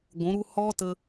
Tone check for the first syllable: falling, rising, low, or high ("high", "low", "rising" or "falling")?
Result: rising